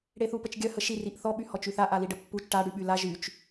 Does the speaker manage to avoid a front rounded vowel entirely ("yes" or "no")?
no